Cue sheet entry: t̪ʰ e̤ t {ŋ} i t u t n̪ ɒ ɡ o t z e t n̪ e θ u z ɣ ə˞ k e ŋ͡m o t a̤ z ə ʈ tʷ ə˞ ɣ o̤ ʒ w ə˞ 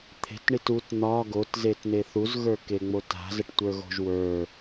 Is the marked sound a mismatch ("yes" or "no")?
yes